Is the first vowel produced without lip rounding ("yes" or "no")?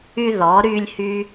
no